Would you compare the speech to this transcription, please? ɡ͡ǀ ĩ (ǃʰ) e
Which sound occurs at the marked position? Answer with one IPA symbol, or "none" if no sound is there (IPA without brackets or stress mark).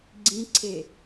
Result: ǀʰ